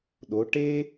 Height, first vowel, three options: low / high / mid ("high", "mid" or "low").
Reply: mid